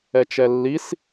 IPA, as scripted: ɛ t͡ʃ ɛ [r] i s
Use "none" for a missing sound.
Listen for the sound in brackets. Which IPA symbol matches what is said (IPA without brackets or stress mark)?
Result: lː